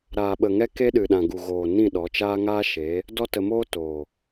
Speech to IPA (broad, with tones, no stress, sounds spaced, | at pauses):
ɾ aː˨ ɓ ə˨ ŋ ɛ˦ k e˦ ɗ ɨ˨ ɗ ã˨ ɡ u˨ ɣ oː˨ n ĩ˦˨ ɗ ɔ˨˦ t͡ʃ aː˦ ŋ aː˦ ʃ e˨˦ | d ɔ˦ t ə˧ m oː˦ t oː˨